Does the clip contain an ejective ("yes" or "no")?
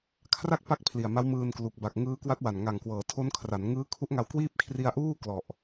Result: no